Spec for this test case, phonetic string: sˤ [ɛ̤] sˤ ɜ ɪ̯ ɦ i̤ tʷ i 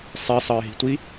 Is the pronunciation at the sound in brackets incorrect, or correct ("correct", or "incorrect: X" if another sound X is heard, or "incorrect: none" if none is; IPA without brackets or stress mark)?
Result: incorrect: ɛ